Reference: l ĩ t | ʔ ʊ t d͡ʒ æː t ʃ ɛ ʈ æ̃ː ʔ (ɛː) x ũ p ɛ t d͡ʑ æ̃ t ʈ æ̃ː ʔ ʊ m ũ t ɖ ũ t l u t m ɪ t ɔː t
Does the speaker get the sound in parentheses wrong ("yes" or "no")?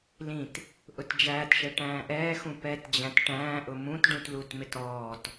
no